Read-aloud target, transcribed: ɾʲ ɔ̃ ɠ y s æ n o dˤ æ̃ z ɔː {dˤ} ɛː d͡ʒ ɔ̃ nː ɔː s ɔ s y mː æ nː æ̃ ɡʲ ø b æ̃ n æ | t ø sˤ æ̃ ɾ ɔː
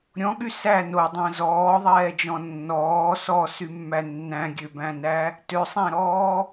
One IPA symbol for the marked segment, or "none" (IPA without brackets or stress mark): ðˤ